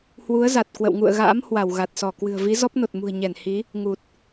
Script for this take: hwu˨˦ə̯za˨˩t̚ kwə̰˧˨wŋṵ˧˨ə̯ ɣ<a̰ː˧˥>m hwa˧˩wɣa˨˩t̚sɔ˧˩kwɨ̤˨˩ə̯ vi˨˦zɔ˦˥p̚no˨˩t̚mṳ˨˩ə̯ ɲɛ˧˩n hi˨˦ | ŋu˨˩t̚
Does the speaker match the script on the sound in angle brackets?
yes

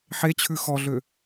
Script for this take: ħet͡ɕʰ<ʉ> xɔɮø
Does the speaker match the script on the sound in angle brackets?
yes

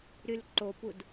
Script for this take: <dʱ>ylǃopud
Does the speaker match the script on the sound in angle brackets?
no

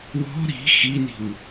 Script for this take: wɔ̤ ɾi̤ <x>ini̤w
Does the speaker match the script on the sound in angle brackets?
yes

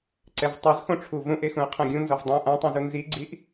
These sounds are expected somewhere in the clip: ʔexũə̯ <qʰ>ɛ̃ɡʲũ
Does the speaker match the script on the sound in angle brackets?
yes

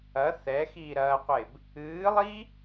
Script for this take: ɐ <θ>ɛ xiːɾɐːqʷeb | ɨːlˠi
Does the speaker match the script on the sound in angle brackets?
yes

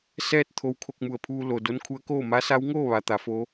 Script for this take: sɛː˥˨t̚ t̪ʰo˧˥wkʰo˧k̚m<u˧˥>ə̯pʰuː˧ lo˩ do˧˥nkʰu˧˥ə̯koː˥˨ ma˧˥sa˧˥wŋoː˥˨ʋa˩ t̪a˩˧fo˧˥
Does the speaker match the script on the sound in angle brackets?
no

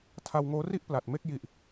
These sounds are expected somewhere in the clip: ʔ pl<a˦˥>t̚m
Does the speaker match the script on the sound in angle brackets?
no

